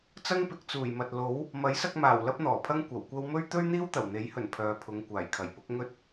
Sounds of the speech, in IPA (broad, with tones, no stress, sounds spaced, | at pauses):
t͡s ɐ˥ ŋ p ɪ˨˥ k̚ t͡s uː˨˩ j m ɐ˨ t̚ l o˨˥ w | m ɐ˨˥ j s ɐ˧ k̚ m aː˨˩ w l ɐ˥ p̚ n̪ ɔː˨˩ pʰ ɐ˥ ŋ kʷ ɐ˨˩ w kʷ ɐ˥ w m ɵ˥ ɥ t̪ ɵ˥ ɥ n̪ iː˥ w t̪ ɐ˨˩ w n̪ e˨˥ j h ɵ˨˩ n pʰ œː˨ pʰ ʊ˨˧ ŋ kʷ aː˨˩ j kʰ ɐ˨˩ j p ʊ˨˥ k̚ ŋ ɵ˥ t̚